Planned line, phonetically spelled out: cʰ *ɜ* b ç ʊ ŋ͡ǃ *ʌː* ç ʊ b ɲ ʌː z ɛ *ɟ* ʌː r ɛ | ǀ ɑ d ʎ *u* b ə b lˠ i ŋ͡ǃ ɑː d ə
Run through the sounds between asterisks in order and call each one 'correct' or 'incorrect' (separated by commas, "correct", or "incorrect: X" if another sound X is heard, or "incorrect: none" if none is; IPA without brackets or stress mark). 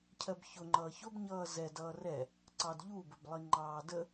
correct, correct, incorrect: d, correct